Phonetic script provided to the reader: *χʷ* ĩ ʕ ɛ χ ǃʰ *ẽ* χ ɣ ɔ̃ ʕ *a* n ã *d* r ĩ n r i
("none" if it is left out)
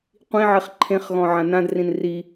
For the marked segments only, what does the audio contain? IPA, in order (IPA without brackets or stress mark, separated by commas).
qʷ, ẽ, ã, d